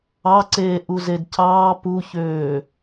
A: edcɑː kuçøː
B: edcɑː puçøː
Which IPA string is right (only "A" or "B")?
B